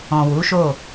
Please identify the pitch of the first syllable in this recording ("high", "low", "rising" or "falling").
low